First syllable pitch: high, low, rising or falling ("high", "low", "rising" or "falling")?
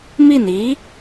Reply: falling